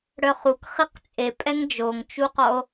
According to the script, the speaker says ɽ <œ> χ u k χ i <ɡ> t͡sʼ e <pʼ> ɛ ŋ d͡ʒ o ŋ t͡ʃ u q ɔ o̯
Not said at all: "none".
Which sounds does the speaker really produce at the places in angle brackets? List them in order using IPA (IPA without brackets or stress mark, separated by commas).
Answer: œ, q, pʼ